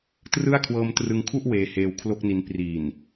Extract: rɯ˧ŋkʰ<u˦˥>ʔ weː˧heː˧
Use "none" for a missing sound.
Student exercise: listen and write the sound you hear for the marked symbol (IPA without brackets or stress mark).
u˥˩